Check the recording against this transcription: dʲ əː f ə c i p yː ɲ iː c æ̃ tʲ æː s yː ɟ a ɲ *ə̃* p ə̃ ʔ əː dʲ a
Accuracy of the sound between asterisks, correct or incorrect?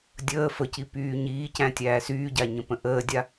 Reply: correct